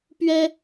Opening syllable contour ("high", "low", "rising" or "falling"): high